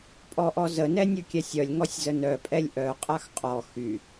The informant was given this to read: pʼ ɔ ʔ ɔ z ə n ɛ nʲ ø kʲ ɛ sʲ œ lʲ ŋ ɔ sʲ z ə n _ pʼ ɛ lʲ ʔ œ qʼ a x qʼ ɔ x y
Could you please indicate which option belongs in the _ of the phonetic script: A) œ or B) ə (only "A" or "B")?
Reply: A